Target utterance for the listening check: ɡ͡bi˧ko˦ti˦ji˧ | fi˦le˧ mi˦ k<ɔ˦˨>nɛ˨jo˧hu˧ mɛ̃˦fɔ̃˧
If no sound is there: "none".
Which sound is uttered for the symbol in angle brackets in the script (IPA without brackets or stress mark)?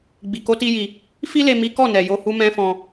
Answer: ɔ˦˨